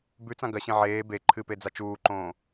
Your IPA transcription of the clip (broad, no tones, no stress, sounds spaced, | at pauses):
b ʉ t͡s ã ɡ ɐ ɕ ẽ ʕ eː b e ǃʰ ɨ p e d͡z a t͡ʃ uː ǃ õː